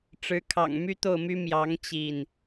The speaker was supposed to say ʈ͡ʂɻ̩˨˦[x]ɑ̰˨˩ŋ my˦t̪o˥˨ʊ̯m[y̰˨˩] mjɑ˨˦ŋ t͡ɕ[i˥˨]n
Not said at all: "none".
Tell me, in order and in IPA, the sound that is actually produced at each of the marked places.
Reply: kʰ, y˦, i˥˨

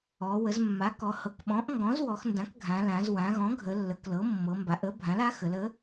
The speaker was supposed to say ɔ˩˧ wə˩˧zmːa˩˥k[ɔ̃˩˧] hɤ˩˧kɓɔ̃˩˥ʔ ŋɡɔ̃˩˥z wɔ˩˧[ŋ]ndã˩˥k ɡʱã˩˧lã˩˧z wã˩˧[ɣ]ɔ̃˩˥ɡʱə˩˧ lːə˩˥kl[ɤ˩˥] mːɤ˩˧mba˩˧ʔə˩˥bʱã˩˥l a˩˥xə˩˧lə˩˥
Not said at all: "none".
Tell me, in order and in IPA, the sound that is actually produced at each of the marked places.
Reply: ɔ˩˧, x, ɣ, ɤ˩˥

